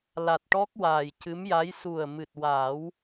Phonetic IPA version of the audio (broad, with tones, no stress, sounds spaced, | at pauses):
l a˨˩ t̚ ʈ ɔ˦˥ k̚ w aː˨˩ j c ɨ˧˥ m j a˧˥ j s u˨˩ ə̯ m ɨ˨˩ t̚ w a˨˩˦ w